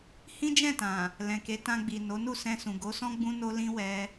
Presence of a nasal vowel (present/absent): present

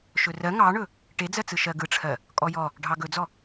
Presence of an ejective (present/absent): present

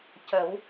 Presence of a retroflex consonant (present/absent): absent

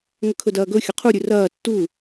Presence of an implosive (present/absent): absent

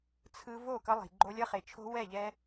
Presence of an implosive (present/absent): absent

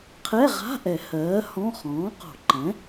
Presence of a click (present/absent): present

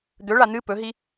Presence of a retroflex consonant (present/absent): present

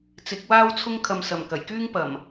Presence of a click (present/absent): absent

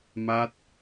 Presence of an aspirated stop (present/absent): absent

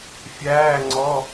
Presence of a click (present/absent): present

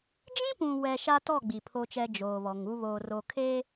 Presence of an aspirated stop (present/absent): present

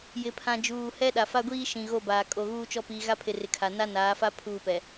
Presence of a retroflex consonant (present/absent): absent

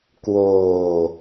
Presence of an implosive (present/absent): absent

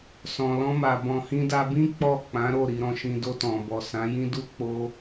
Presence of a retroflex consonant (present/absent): absent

